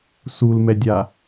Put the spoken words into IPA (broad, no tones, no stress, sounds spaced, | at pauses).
s u l m ɛ dʲ a